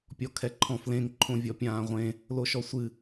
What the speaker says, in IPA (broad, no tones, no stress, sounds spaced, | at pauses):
pʲ ɔ kʰ ɛ ǃʰ ɔ̃ f l ẽ ŋ ǃʰ õ vʲ ɔ pʲ ãː ʁʷ ẽ | l o ʃ ɔ sʷ ɨ